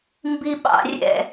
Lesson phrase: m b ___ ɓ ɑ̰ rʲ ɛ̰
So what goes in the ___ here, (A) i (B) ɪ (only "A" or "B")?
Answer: A